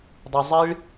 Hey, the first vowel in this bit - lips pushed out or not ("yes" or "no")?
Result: no